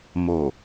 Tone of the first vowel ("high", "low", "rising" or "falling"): low